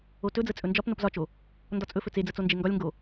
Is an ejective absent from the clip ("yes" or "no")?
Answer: no